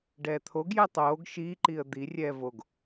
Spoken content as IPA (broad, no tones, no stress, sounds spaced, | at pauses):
ɖ ɛː t̪ʰ o ɡ j ɛ tˤ oː ɡ ʃ iː ǃ i ə̯ d̪ i rʲ ɛː v o ɡ